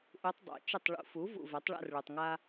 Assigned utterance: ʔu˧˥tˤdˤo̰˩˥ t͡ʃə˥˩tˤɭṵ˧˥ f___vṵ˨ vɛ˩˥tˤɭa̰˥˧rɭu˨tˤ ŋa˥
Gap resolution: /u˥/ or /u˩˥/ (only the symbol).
u˩˥